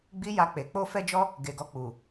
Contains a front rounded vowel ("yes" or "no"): no